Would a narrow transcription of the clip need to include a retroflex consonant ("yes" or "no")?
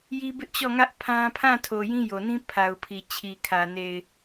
no